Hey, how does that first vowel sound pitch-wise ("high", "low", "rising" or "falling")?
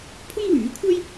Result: high